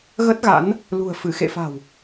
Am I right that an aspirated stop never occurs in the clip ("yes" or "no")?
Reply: yes